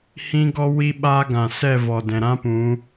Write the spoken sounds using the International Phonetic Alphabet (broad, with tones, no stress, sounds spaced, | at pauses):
h ĩ˦ ɡ ɔ˦ w i˦ ɓ aː˦ ɡ ã˨ s ɛ˦˨ v ɔ˨ d ɛ̃˨ ɾ ã˦ p ũ˨˦